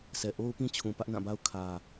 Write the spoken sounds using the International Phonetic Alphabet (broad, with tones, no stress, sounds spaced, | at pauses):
sʰ ɛ˨ ʔ o˦ ʊ̯ p ĩ˦ t͡ɕʰ ũ˨ p ä˦ ʔ n ã˦˨ b a˦ ʊ̯ kʰ ä˨